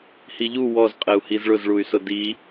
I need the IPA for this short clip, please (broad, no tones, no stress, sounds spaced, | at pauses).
h i ʎ u w ɔ z qʼ ɛ u̯ h i z ɭ ʊ z ɭ u y̯ s ʊ d i